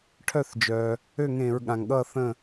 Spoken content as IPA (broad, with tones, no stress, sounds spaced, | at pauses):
ʈʰ œ˧˩ θ d͡ʒ œ˩ | ø˥˨ ŋ ẽ˧˩˧ ɹ ɠ ã˩ ŋ ɠ ʌ˥˨ θ ə̃˥˨